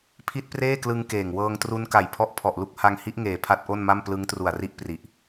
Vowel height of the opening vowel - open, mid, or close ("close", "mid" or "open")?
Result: close